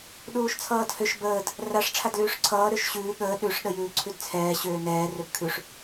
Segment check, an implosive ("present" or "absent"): present